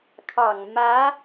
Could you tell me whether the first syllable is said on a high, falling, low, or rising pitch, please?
low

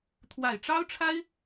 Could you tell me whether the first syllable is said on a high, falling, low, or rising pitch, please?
low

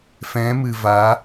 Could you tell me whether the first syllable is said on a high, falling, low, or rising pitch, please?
rising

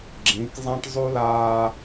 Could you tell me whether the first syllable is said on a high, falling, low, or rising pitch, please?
rising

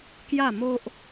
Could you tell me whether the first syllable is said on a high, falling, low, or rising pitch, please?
falling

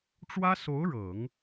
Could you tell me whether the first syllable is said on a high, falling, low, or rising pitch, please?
high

